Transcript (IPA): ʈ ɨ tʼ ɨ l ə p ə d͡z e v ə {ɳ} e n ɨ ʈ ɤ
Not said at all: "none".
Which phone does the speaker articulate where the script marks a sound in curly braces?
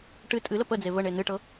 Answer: ɳ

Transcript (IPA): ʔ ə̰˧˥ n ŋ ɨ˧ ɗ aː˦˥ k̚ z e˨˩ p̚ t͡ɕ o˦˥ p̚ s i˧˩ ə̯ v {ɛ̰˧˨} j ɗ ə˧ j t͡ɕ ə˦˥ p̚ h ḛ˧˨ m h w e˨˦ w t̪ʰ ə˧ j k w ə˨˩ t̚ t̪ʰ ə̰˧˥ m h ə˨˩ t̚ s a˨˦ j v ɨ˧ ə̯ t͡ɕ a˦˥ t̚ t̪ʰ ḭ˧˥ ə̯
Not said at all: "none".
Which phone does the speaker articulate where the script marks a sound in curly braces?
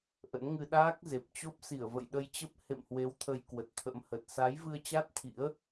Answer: ə̰˧˨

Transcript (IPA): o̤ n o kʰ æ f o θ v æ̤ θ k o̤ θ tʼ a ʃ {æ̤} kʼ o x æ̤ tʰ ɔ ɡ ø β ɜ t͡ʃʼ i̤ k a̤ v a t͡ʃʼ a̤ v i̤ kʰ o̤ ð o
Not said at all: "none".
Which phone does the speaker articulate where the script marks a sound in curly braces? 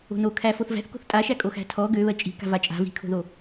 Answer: æ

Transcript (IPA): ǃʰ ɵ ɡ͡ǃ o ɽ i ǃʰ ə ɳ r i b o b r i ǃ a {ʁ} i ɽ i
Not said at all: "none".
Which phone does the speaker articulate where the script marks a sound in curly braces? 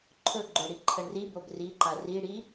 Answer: r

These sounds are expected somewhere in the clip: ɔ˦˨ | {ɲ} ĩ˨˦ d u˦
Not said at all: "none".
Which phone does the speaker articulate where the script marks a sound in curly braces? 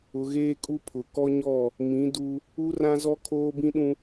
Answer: m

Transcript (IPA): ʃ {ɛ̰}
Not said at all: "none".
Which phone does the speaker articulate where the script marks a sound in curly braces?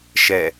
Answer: ɛ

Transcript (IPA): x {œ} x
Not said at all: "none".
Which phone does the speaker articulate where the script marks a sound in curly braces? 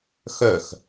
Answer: œ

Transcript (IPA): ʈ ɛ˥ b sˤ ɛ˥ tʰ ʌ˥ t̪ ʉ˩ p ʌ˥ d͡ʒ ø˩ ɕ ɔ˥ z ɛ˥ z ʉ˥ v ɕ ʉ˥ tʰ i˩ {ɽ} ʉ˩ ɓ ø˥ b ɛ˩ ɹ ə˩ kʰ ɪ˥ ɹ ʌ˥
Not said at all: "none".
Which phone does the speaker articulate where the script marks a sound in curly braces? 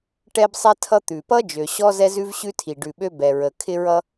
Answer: ɖ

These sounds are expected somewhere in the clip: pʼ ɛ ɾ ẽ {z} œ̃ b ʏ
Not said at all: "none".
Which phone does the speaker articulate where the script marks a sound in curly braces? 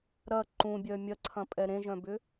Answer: ʒ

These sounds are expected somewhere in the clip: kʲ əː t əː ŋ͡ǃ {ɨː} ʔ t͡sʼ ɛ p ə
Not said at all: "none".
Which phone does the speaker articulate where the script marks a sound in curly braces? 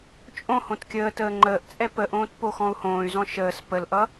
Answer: əː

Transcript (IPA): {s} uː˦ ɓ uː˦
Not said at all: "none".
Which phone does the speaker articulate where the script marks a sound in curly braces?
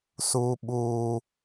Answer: s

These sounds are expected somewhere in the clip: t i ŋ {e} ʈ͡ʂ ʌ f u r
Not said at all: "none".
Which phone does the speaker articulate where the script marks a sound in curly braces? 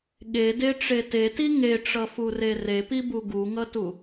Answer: e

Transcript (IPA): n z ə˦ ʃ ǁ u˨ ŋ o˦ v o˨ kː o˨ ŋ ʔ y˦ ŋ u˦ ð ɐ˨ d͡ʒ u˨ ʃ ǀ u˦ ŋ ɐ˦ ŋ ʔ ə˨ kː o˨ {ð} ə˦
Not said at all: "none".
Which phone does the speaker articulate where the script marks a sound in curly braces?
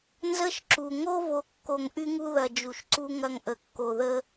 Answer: ð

